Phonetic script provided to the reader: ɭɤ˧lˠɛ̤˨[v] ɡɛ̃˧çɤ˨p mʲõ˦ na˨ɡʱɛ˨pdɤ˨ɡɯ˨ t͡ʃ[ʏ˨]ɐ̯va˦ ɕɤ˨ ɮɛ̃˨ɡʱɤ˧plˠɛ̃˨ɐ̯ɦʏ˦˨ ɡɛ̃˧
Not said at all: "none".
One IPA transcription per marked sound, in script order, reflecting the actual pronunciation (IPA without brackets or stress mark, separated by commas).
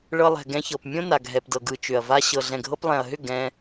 none, ʏ˨